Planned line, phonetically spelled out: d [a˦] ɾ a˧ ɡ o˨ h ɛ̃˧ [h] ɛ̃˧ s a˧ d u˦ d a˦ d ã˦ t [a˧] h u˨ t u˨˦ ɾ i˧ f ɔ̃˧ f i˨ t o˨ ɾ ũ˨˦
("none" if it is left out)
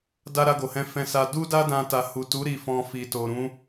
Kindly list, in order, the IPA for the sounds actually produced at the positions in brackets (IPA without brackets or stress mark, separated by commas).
a˦, f, a˧